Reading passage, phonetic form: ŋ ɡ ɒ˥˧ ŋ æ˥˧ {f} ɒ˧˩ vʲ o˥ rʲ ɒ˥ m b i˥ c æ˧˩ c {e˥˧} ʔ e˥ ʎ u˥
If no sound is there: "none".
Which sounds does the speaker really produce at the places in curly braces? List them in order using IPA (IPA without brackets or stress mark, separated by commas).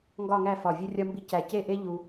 f, e˥˧